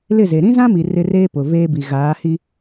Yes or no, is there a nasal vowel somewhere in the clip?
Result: yes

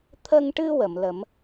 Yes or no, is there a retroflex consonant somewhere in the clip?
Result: yes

